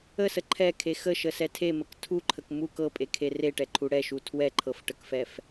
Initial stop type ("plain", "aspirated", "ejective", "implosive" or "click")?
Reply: click